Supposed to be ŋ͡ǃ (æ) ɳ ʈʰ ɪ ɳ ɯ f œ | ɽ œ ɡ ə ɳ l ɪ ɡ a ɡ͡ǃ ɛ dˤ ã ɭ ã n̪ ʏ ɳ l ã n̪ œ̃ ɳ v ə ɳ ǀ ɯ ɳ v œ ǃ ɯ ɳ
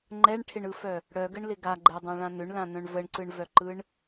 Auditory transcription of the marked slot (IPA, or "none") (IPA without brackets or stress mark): ɛ